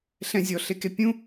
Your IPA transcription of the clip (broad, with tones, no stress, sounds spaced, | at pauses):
ɬ ɛ̃˧ zʲ ɔ˨˦ ɬ e˧ k e˦ pʲ ũ˦